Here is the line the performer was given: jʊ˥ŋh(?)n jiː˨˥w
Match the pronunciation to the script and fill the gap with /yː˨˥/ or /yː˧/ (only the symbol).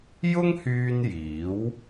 yː˧